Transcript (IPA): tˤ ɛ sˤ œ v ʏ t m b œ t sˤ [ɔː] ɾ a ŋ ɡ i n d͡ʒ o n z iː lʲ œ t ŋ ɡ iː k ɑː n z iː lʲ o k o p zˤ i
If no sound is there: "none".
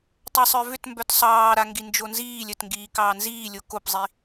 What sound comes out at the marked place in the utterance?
ɑː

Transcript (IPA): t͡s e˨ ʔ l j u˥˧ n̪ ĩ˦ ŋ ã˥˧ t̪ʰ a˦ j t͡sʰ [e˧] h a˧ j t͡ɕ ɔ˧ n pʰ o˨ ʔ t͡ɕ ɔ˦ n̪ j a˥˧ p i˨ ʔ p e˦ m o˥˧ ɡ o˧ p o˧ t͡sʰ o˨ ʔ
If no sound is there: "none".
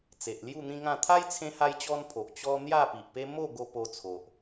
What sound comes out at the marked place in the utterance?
ẽ˧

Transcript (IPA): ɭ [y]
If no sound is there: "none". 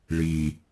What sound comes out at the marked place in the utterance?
i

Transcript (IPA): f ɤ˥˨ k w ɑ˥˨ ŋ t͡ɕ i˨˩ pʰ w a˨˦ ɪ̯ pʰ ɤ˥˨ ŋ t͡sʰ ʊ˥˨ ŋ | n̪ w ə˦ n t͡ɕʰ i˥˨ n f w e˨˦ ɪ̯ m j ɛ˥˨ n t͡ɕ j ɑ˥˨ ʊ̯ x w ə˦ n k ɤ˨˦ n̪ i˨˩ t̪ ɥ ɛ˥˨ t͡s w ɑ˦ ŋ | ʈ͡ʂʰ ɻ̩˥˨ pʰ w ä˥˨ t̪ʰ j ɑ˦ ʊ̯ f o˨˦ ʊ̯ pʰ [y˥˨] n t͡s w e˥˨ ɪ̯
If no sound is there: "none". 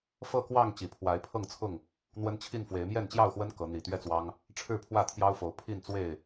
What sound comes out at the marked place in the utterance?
i˥˨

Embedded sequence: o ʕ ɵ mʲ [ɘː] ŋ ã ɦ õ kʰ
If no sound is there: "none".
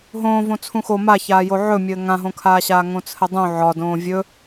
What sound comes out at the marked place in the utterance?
ɘː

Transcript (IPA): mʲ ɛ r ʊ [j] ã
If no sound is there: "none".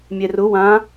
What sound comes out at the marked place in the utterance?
w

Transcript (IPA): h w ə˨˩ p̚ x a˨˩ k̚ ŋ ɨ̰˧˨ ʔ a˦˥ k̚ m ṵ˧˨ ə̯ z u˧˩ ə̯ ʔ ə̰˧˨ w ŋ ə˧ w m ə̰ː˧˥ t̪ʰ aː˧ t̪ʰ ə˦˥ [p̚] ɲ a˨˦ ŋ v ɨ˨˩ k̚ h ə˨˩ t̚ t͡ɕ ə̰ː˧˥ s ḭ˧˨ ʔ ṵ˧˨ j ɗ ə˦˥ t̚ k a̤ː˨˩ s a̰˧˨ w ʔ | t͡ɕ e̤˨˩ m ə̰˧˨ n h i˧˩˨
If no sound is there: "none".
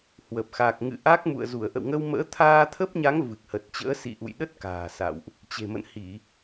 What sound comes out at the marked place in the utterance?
p̚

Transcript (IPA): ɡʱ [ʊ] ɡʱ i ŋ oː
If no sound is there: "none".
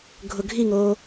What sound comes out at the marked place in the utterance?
ʊ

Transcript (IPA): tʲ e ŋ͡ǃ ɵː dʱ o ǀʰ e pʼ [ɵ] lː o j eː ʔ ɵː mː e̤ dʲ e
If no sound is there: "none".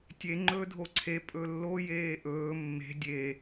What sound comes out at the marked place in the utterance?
ɵ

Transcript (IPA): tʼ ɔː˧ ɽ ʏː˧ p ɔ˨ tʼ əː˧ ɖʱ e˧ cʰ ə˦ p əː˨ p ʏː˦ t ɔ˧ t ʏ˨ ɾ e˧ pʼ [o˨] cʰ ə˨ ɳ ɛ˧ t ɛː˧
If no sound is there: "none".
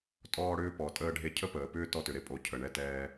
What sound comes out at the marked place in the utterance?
o˨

